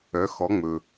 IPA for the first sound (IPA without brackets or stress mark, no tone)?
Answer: œ